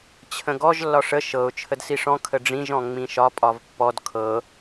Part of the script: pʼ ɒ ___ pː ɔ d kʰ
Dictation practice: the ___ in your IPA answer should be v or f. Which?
v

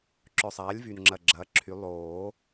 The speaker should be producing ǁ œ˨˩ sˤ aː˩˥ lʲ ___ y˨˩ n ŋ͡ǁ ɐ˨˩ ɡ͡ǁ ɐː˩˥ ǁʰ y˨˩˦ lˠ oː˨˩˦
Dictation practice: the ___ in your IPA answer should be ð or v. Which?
v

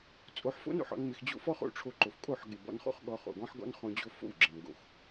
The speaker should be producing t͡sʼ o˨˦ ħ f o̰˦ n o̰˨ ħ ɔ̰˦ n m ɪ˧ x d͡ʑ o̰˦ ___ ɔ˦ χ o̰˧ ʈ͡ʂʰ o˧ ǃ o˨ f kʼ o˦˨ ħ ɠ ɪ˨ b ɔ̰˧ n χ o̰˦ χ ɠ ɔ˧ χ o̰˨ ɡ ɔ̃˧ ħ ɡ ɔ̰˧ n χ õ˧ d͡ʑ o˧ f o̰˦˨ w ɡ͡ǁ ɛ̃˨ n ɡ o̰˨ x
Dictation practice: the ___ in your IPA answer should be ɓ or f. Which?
f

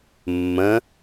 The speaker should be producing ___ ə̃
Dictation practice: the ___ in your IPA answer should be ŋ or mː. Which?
mː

